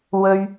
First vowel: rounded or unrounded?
rounded